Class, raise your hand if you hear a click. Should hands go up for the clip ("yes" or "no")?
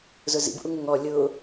no